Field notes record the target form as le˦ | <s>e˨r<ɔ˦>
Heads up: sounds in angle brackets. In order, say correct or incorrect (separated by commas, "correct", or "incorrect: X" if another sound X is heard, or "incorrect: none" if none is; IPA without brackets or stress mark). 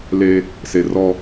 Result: correct, correct